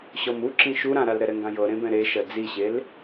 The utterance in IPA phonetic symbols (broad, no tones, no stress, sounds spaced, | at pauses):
ɕ ɔ m u ǁ ĩ ʃ u ɾ ã ɾ a l ɾ ɛ ɾ ɛ ŋ ɡ ã j ɤ ɾ ẽ b ɛ̃ ɾ e ʃ ɜ d͡z i ɕ e l